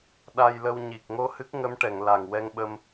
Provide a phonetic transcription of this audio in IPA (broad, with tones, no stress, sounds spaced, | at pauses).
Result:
ɗ a˧ j l ə˧ w ɲ i˨˩ k̚ ŋ o˧ h ɨ˦˥ k̚ ŋ ə˧˥ m ʈ ɛ˨˩˨ ŋ l a˨˩ ŋ w ɛ˧ ŋ ɓ ə˧ m